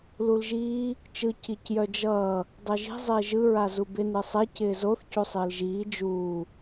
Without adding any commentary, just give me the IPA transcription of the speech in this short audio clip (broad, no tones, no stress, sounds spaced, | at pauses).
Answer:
l u l ʒ iː | t͡ʃ ɯ c i c j œ d͡ʒ ʌː | dˤ œ ʒ i̤ zˤ ɪː ʒ ɯ ɹ a z u b ɪ n ɯ sˤ ɛ c ɪː z o θ c u sˤ ɪː l ʒ iː d͡ʒ uː